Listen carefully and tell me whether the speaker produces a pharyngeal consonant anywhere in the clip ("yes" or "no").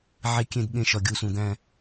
yes